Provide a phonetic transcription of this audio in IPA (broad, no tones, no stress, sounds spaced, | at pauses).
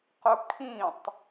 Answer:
q ʊ kʰ ĩ tˤ